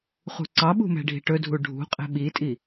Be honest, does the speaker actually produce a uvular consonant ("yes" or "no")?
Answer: yes